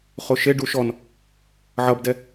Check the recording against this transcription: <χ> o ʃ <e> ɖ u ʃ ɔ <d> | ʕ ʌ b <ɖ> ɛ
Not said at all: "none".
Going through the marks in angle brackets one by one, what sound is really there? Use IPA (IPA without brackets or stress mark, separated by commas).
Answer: χ, e, n, d